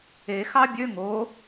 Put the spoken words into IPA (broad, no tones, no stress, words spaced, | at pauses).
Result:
exɑ bʲø ŋo